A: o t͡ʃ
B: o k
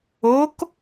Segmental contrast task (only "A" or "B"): B